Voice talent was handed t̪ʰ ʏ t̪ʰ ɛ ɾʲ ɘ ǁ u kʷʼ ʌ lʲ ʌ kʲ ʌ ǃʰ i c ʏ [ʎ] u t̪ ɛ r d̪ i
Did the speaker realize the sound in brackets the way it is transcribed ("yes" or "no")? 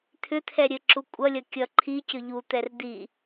yes